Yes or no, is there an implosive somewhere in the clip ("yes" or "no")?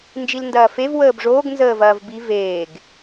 no